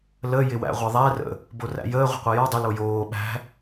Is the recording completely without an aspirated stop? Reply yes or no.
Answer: yes